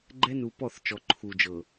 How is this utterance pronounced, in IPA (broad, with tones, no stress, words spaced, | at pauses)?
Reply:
ɡ͡ǃɛ˦nu˨pɔ˦˨θ t͡ʃɔ˨ǃʰu˨d͡ʒɤ˨